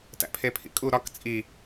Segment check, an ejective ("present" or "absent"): present